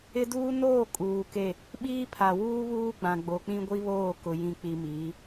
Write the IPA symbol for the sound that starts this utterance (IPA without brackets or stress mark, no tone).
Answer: ɪ